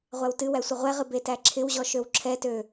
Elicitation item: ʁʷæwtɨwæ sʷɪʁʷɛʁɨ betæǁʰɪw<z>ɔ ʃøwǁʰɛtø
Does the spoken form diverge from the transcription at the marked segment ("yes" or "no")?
yes